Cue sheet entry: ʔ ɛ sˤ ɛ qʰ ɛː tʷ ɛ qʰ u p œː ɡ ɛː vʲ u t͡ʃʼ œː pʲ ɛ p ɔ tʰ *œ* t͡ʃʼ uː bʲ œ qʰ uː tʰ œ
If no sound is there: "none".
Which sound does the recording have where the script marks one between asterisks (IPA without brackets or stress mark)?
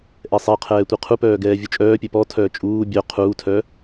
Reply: œː